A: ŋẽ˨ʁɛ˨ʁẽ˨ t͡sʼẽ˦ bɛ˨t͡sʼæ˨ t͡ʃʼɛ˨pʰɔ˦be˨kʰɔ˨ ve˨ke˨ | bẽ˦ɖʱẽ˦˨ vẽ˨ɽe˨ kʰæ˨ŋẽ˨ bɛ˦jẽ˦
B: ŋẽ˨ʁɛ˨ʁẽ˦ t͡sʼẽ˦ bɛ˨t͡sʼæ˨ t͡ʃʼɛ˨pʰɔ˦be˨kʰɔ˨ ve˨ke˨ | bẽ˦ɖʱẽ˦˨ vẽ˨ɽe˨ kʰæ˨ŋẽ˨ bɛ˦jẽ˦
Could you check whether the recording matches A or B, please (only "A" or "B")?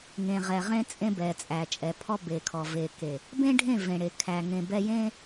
B